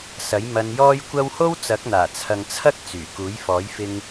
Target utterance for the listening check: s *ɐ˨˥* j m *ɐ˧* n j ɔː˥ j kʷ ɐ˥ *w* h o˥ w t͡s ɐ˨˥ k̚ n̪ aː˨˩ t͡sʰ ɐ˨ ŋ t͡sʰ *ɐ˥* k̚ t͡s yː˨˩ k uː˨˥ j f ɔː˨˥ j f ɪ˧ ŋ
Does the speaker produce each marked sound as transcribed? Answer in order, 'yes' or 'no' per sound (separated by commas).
yes, yes, yes, yes